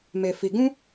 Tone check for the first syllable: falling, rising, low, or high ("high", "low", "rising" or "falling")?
low